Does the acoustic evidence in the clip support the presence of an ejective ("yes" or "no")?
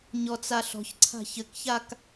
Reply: no